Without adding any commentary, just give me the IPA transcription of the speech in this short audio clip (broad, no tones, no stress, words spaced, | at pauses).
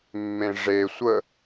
mːẽʐe sʷə